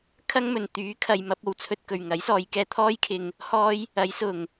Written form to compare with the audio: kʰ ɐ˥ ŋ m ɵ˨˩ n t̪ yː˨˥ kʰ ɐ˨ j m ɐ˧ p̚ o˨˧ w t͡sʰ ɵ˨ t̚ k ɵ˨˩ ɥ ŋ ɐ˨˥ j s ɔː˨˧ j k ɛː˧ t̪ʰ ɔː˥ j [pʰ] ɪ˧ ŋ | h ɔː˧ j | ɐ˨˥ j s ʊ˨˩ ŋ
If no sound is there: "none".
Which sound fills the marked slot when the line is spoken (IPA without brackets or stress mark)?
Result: kʰ